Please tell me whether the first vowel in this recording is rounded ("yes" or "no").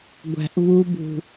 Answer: no